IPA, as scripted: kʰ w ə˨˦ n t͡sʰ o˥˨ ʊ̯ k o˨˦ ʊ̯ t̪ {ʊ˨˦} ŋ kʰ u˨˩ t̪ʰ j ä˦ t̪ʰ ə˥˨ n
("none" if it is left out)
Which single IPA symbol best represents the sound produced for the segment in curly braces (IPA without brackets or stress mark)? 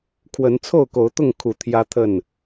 ʊ˥˨